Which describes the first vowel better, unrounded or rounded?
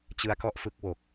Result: unrounded